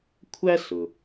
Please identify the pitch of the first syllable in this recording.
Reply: high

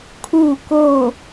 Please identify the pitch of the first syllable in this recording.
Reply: falling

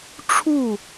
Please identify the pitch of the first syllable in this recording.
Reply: falling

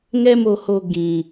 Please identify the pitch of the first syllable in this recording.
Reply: high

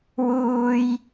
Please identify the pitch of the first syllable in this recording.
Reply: high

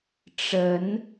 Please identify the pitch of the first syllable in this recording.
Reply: rising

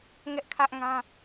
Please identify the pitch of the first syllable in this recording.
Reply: high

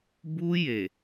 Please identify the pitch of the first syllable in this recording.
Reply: high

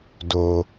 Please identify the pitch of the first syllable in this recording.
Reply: low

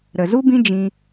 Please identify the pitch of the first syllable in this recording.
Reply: low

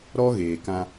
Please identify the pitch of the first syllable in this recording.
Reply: high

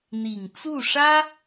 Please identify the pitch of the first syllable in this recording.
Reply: low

